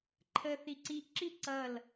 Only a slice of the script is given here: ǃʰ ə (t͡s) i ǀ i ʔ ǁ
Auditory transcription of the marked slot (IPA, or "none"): θ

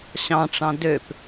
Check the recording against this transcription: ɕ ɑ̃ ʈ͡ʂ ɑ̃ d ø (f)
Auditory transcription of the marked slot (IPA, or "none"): p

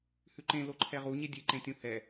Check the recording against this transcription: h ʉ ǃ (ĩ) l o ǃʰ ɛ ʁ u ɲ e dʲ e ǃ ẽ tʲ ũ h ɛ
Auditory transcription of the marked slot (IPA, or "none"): ẽ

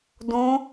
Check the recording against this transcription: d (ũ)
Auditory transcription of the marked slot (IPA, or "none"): ũ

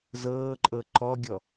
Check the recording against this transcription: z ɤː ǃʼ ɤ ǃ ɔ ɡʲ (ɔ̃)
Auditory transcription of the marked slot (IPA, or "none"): ɔ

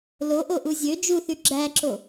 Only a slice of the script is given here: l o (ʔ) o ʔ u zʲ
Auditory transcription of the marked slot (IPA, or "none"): ʔ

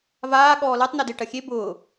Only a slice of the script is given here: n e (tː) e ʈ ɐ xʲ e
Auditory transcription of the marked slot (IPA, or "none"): d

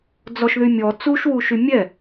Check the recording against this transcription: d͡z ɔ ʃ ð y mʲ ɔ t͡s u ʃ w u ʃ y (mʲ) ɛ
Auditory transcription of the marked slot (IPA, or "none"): mʲ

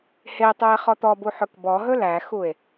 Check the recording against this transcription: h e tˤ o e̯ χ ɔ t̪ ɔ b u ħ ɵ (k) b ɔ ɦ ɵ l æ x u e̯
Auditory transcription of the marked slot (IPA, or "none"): k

